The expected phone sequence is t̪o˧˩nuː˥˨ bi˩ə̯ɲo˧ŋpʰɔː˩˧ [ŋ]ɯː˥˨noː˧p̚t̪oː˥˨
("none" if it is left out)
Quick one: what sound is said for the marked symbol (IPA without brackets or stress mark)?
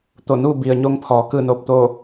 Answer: k